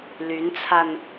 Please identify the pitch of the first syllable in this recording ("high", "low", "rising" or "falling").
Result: rising